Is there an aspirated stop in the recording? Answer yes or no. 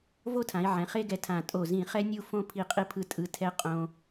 yes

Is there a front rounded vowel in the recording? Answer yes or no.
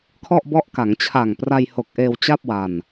no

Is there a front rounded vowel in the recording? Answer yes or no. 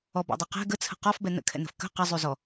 yes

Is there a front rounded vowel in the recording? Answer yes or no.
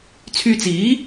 yes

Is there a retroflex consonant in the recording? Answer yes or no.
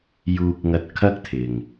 no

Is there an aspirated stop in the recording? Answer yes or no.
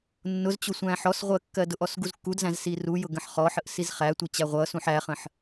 no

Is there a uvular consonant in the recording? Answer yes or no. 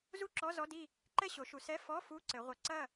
yes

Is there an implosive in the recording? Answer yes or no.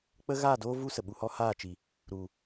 yes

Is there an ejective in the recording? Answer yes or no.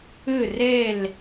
no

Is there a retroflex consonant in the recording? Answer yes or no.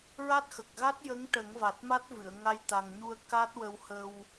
yes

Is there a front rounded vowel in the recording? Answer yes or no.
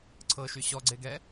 yes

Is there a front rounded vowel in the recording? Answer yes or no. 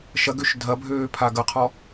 yes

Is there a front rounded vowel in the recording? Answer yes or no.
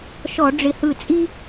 no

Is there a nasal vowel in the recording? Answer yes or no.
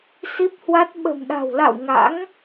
no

